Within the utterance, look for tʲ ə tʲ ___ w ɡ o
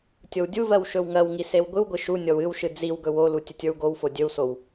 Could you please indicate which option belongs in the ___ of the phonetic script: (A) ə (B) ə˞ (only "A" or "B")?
B